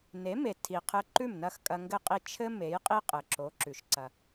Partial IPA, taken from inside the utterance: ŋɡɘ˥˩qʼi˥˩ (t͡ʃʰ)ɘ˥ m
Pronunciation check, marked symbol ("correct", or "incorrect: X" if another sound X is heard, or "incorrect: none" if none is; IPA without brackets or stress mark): correct